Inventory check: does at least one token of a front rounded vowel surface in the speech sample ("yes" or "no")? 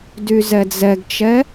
yes